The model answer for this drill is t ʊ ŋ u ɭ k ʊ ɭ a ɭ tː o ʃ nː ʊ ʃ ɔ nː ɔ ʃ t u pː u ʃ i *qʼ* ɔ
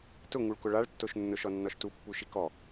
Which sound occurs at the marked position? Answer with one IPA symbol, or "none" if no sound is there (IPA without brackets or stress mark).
k